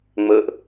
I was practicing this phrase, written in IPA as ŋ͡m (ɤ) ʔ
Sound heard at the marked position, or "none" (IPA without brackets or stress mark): ɤ